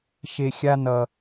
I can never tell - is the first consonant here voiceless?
yes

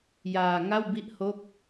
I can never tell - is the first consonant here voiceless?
no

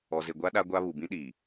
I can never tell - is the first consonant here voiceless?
no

